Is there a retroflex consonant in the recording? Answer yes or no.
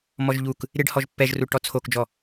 yes